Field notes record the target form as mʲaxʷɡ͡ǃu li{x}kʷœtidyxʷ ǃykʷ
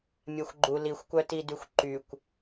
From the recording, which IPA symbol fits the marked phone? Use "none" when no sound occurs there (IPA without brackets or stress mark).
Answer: xʷ